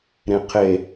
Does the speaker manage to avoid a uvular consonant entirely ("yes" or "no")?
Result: no